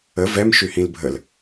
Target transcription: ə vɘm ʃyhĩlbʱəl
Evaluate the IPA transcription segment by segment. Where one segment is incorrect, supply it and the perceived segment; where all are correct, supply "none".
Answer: ɘ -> ɛ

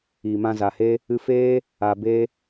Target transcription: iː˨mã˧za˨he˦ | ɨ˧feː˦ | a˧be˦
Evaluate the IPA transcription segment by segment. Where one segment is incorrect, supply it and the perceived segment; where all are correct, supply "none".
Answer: none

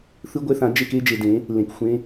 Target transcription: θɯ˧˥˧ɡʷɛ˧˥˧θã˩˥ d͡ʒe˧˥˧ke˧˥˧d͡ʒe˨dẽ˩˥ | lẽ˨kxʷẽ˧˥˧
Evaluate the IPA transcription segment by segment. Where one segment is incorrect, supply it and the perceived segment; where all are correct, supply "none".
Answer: none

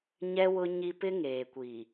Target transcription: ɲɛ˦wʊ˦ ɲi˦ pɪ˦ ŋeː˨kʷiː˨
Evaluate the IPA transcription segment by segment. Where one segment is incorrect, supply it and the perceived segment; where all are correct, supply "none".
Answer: none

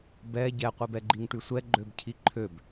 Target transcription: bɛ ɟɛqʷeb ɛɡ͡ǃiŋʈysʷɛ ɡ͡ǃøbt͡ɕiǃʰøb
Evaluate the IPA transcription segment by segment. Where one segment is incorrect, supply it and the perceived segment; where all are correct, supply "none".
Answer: t͡ɕ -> cʰ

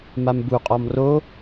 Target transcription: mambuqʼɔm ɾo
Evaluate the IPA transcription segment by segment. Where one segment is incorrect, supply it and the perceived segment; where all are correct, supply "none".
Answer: ɾ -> r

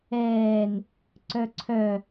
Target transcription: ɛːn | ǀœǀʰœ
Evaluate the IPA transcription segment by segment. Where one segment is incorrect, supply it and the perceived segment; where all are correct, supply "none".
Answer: none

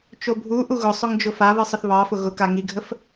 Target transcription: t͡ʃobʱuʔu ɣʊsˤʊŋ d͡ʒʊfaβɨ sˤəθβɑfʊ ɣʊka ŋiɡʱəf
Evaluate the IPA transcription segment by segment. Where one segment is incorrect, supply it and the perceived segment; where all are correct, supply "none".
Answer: none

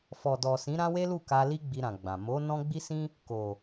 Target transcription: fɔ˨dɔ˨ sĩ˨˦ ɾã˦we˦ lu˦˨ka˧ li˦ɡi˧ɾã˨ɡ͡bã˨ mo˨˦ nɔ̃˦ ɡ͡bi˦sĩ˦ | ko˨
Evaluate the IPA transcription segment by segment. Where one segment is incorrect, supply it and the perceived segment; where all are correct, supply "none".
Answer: ɡ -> ɡ͡b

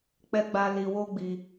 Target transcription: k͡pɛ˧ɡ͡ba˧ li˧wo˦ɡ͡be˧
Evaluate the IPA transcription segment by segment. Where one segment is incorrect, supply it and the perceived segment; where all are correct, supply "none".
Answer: e˧ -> i˧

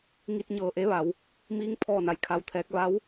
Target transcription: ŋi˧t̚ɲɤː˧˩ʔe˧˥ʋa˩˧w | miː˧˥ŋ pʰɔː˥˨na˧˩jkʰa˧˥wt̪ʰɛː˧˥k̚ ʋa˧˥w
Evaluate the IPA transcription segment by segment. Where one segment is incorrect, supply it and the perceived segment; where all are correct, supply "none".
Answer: none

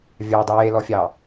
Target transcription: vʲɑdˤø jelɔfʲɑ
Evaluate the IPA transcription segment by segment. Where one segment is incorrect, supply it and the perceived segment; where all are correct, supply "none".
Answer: none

